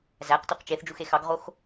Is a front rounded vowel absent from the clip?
no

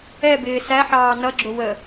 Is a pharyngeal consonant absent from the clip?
no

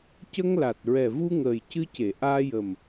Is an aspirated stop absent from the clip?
yes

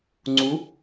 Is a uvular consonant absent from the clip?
yes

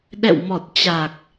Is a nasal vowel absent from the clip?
yes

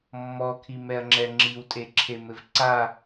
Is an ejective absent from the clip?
no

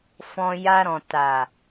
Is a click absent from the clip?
yes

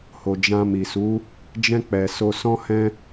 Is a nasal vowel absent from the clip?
no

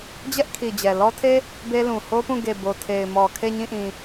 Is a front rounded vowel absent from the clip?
yes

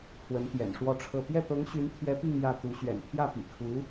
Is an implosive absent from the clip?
yes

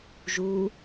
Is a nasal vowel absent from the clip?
yes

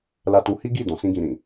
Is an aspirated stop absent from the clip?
yes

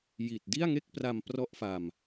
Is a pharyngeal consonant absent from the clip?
yes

